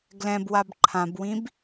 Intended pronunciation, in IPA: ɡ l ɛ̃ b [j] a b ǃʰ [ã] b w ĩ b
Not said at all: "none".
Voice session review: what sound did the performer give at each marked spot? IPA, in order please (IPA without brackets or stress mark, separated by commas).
w, ã